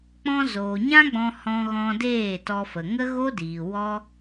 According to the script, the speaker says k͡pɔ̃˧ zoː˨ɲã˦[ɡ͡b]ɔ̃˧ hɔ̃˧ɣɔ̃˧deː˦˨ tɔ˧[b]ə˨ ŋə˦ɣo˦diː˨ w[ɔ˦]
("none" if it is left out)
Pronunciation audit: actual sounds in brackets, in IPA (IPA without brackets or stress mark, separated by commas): ɡ͡b, f, ɔ˦